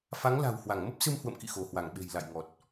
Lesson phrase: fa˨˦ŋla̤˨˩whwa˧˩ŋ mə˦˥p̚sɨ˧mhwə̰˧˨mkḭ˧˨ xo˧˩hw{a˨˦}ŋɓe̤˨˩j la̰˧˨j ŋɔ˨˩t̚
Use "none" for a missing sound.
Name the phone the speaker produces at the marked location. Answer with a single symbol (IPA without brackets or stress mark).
a˧˩